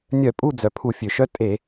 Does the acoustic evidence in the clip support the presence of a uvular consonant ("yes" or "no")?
no